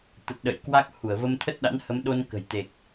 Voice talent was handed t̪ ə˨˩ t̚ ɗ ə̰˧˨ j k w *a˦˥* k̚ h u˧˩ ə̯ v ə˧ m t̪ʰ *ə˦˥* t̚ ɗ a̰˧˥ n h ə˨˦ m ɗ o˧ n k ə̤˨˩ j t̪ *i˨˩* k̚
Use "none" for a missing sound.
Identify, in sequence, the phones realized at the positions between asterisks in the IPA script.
a˦˥, ə˦˥, e˨˩

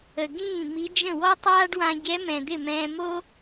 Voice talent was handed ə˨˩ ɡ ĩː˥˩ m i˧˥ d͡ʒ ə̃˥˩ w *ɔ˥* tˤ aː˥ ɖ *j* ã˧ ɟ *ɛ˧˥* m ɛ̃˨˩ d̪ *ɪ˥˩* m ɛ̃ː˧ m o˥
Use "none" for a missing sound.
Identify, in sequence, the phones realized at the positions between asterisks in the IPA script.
ɔ˥, w, ɛ˧˥, ɪ˥˩

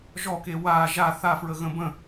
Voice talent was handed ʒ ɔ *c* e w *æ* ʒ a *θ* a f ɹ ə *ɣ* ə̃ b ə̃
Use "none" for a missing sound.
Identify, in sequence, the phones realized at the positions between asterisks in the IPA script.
k, a, θ, ɣ

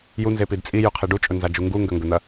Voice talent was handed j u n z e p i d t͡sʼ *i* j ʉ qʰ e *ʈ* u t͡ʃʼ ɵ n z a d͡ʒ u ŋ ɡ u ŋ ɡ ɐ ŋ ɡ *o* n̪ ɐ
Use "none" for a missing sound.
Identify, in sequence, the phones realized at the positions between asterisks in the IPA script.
i, ɖ, ɵ

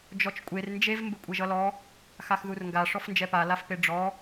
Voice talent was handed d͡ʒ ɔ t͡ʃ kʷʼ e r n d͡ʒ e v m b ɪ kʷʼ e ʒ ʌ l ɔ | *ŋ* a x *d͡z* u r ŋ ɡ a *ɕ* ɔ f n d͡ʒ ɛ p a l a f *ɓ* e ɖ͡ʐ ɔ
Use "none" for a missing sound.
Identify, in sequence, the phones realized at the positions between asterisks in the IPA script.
x, ð, ʂ, p

